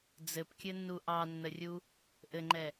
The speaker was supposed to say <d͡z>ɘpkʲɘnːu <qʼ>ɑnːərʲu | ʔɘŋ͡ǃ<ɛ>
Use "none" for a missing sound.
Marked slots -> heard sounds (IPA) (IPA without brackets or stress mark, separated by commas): d͡z, ʔ, ɛ